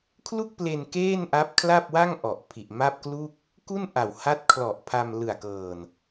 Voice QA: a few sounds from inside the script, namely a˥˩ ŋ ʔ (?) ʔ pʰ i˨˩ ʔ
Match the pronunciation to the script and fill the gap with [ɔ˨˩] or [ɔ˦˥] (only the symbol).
ɔ˨˩